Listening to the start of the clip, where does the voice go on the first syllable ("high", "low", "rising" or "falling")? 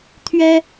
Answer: high